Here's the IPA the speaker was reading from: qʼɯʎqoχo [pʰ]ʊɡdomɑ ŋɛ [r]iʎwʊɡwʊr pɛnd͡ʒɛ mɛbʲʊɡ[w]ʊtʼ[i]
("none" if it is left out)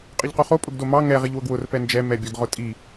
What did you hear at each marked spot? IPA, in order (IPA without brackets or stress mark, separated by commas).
pʼ, ʁ, ʁ, i